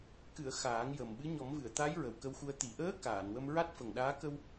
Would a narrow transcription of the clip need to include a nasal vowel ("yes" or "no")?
no